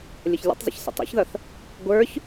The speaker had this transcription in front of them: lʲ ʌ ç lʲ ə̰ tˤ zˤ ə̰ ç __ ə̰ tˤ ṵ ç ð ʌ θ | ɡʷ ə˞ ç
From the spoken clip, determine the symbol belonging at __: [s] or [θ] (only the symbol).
s